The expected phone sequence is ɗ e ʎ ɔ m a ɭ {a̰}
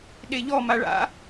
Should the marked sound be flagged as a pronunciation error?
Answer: no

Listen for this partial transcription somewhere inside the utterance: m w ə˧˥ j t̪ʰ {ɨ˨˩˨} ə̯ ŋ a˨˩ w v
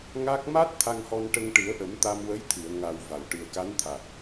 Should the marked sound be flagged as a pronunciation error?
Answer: no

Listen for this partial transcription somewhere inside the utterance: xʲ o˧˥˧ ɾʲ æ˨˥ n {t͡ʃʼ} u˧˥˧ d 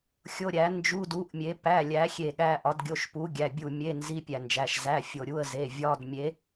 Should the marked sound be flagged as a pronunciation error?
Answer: yes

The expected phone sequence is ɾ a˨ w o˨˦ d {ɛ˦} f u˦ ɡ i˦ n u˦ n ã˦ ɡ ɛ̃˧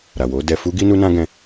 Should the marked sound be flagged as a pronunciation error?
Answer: yes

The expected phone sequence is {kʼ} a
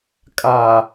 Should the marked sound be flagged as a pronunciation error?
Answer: no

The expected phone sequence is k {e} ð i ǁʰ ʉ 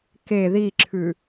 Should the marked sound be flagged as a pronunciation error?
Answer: no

